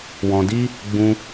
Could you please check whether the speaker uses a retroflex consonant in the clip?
no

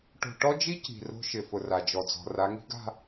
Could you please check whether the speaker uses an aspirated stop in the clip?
no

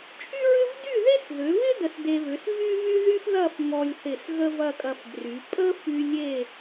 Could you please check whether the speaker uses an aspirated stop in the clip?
no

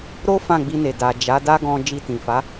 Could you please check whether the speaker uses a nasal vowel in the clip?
yes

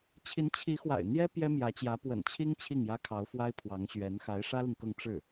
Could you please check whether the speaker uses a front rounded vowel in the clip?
no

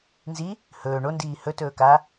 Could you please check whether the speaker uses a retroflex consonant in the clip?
yes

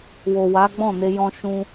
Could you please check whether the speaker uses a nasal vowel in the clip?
yes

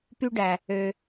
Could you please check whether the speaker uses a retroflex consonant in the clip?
yes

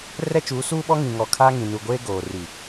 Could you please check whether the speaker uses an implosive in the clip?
yes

